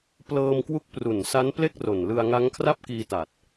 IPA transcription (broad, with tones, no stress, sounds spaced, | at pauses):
p l ɤː˧ m k w u˦˥ k̚ p r u˨˩ n s a˦˥ n p l e˥˩ k̚ r o˨˩ n l ɯ˧ a̯ ŋ a˦˥ ŋ kʰ r a˥˩ p̚ k iː˧ t a˨˩ t̚